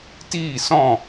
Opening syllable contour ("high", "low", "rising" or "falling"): falling